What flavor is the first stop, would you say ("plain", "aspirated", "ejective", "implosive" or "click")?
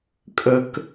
ejective